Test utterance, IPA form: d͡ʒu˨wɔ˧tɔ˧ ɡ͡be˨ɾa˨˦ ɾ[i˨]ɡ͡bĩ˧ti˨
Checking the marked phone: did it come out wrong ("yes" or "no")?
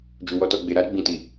yes